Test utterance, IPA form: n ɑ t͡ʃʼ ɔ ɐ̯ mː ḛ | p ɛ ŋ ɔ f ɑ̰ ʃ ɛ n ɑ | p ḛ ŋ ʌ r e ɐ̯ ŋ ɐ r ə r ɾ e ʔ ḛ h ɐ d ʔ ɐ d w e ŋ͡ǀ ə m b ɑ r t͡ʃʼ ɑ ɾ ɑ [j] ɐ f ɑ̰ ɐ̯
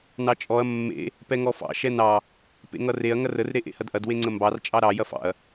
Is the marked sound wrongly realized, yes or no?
no